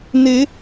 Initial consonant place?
alveolar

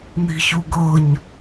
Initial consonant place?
alveolar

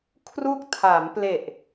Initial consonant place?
velar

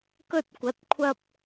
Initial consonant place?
velar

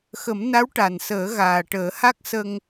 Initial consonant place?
velar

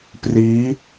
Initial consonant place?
labial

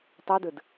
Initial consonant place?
alveolar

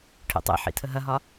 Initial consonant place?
retroflex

